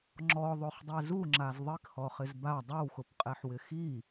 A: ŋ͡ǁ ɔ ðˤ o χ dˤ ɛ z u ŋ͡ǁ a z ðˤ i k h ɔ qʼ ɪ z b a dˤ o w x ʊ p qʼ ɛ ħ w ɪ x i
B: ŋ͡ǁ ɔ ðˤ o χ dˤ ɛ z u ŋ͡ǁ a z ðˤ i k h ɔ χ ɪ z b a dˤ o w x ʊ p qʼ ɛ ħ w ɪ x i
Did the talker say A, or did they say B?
B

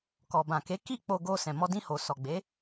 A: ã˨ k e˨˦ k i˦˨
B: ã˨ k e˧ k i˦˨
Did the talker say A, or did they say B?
A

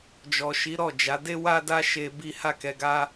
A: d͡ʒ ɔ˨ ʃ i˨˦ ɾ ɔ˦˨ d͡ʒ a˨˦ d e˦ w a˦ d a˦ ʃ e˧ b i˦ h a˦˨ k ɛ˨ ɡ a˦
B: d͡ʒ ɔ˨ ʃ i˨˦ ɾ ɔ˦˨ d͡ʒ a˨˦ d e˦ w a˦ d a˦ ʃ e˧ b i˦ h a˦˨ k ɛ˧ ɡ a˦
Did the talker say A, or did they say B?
B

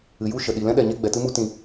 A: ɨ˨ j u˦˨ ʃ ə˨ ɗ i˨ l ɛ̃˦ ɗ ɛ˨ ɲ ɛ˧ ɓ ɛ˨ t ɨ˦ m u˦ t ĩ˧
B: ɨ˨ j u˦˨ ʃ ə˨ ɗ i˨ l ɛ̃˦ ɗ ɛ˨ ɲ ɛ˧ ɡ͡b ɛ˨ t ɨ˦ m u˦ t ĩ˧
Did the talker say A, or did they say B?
B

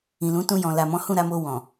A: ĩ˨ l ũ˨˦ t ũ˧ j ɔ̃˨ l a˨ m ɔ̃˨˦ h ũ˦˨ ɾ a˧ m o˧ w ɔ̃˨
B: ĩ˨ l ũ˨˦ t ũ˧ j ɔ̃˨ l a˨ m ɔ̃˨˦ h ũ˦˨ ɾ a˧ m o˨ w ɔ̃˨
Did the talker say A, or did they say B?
A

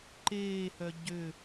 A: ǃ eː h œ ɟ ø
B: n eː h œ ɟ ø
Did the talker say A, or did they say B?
A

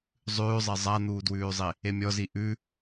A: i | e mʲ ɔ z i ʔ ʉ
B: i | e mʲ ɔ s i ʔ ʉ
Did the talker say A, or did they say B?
A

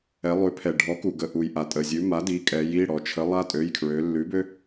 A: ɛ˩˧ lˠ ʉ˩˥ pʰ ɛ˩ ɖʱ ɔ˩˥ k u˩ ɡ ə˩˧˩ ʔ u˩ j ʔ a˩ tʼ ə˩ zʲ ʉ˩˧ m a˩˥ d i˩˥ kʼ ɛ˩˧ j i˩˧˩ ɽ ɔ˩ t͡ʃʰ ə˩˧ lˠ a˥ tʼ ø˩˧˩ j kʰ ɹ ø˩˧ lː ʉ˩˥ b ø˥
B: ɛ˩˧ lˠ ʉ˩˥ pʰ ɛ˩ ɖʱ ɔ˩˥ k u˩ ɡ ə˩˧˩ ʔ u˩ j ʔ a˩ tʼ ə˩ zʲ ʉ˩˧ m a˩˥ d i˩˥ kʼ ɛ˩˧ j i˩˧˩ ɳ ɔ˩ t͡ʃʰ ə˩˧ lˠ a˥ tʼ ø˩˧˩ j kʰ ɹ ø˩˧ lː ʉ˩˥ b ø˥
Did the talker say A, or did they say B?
A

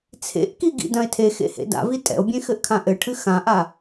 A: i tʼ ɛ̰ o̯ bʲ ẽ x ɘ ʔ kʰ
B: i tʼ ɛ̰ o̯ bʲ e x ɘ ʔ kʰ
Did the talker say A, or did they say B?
A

